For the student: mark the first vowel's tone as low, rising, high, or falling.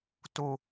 low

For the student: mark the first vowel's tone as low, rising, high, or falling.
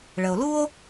low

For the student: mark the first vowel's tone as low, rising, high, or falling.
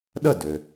falling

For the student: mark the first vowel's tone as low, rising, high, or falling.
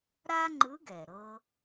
high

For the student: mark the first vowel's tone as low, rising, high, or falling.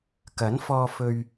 rising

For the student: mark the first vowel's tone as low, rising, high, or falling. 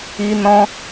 high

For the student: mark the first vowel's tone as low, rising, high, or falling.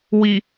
low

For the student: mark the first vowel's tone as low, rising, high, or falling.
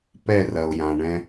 falling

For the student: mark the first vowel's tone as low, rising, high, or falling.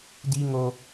high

